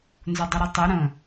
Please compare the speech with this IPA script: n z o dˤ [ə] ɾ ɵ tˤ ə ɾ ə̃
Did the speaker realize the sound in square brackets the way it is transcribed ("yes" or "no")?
yes